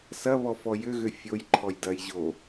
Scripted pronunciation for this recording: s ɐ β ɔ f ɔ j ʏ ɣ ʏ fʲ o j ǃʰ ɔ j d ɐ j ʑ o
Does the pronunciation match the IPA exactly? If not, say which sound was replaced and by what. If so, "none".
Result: none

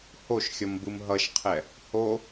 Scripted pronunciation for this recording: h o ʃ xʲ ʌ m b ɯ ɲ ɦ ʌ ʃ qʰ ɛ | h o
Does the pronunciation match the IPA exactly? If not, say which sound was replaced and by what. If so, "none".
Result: ɲ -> m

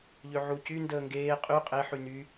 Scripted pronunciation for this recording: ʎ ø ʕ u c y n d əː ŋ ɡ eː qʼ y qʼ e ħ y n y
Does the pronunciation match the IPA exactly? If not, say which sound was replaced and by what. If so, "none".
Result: none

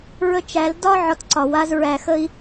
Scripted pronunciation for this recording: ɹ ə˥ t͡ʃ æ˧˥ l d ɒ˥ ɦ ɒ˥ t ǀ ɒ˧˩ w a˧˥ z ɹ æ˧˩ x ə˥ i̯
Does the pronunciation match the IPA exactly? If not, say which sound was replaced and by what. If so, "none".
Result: ɦ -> ʕ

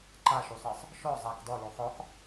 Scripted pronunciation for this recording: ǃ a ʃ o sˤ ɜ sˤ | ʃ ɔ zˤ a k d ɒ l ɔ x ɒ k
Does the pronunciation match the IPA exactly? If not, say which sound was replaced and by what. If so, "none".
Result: none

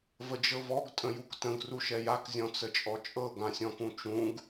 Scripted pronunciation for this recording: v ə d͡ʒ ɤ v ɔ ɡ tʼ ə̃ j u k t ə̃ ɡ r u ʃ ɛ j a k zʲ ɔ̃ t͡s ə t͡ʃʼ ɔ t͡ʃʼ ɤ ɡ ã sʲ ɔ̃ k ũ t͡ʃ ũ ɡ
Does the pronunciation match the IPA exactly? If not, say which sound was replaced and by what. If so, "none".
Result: none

